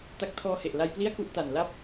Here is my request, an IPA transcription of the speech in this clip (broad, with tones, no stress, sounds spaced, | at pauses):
t a˦˥ k̚ tʰ ɔː˧ h e˨˩ ʔ l a˧ j p l i˥˩ a̯ k u˥˩ ʔ t a˨˩ n l a˥˩ p̚